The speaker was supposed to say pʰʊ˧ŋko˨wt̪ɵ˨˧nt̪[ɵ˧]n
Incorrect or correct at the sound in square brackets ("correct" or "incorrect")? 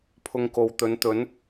incorrect